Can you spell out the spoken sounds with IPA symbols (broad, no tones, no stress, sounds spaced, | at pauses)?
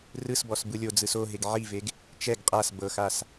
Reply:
r ɯ s b ɔ s b ɯ lʲ o d͡z ɯ s o ɦ e ɡ ʕ i v e ɡ | t͡ʃ ɛ ɡ qʼ a s b ɤ x a s